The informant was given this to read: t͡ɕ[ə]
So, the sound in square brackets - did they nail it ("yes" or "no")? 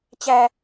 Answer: no